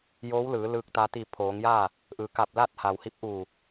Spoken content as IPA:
j oː˧˥ w l ɯː˩˧ l ɯː˧ k̚ t̪ a˧ t̪ i˧˩ pʰ oː˩˧ ŋ j aː˥˨ | ʔ ɯː˩ k a˧˩ p̚ l a˥˨ t̚ h a˩ w h i˧˥ p̚ ʔ uː˧˩

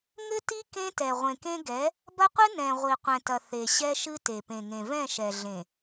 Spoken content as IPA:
ŋ ɘ˦ t i˦ k ẽ˦ t ɛ˨ ʁʷ ẽ˨ k ẽ˦ ɡ ɛ˨˦ | b ɐ˦ qʷ ɨ˦ n ɛ̃˨ ʁʷ i˨ qʷ ɛ̃˨ t ɐ˨ θ e˨ ɕ ɛ˦ ʃ ɨ˦ t e˨ p ẽ˨ ŋ ẽ˨ v ɛ̃˦˨ ʃ ɛ˨ ɮ ẽ˨

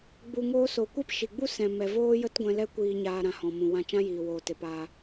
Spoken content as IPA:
ɡ͡b u˧ ŋ oː˦ s o˨ kʷ e˦ p ʃ i˨ ɡ͡b u˦ s ɛ̃˨ m ɛ˨ v oː˦ j ə˦ t ɡʷ ɛ̃˧ l ɛ˦ kʷ iː˧ ɲ aː˧ ɾ ã˨ h ɔ̃˨ m ũ˨ w ã˧ t͡ʃ ã˦ j iː˨ w oː˨ t e˨ p aː˧

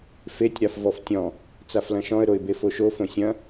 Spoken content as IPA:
f e tʲ ɾ a f v ɔ f tʲ ɔ̃ | t͡s a f l ɐ̃ ʃ ɔ̃ ə̯ ɾ o ɪ̯ b e f o ʃ o f õ sʲ ɐ̃

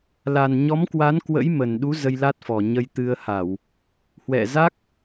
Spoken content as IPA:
l a˨˩ n ɲ ɔ˨˦ m k w a˨˦ n k w ə̰˧˥ j m ə˨˩ n ɗ u˨˦ z ə˧ j l a˦˥ t̚ f ɔ˨˩ ɲ ə˧ j t̪ ɨ˧ ə̯ h a˧˩˨ w | h w ɛ̰˧˨ z a˦˥ k̚

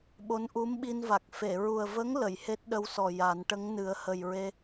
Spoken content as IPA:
ɓ o˧˥ n ʔ u˧˥ m ɓ i˧ n v a˨˩ k̚ f e˨˩˨ ɹ u˨˩ ə̯ v ə˧˥ ŋ l ə˨˩˨ j h e˦˥ t̚ ɗ ə˧˥ w s ɔ˨˩ j a˨˩˦ n ʈ ə˧˥ ŋ n ɨ˨˩˦ ə̯ h ə˨˩ j ɹ e˧

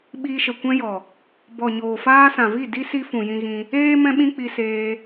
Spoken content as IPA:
ɓ iː˧ ʃ ə˨ kʷ ɛ̃˦ j ɔ˨ | b ɔ˨ ɲ oː˨ f aː˧ s ã˨ v i˦˨ d i˦ s i˧ f ũ˨ j ĩ˧ ɣ ĩ˧ | eː˦ m ɛ̃˦ ɓ ĩ˦ k͡p i˧ s eː˧

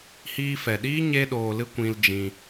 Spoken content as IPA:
h iː˧ f ɛ˨ ɗ iː˦ ɲ e˦ ɗ oː˧ l ɨ˦ kʷ ĩ˦ l d͡ʒ ĩ˧

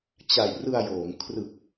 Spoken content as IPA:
t͡ɕ a˨˩ j r ɯ˧ a̯ j oː˩˦ ŋ kʰ r ɯ˨˩ k̚

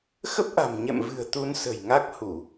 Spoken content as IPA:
x ə˦˥ p̚ ʔ a̤˨˩ m ɲ ɛ̰˧˨ m v ɨ̤˨˩ ə̯ t̪ u˧ n s ə̤˨˩ j ŋ a˦˥ k̚ h u˧˩˨

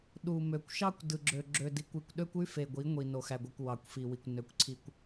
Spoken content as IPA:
ɗ u˨ m ø˨ kʷ ʃ ɑ˦ kʷ d ɯ˨ ɡ͡ǁ ø˨ ɡ͡ǁ ø˨ d i˨ kʷ i˨ kʷ ɗ ø˦ kʷ y˦ f e˨ ɡʷ i˨˦ ŋʷ i˨ n o˨ x æ˨ ɡʷ ɯ˨ kʷ w ɑ˨ kʷ f i˨ w i˨ kʷ n ø˨˦ kʷ ǀʰ i˨ kʷ

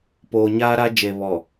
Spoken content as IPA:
p oː˨ ɲ aː˦ ɾ a˦ d͡ʒ e˨ β ɔ˨

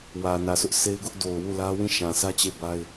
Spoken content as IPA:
w ä˨ n ä˨ s ʊ˦ ʔ s e˦ ɪ̯ ɡ ʊ˦ ʔ d o˨ ʊ̯ w u˦˨ l ä˦ w ĩ˦˨ ʃ ã˨ s ä˦ t͡ɕ e˦˨ b a˦ ɪ̯

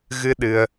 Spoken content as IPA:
ɣ ɨ˧ ɗ ɨ˧ ə̯

